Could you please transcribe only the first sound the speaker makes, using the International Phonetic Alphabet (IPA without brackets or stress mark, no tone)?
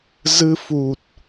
z